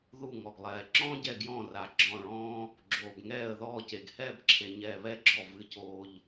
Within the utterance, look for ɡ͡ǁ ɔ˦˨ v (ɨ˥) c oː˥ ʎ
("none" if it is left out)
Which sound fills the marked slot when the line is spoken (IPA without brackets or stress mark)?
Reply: ɨ˥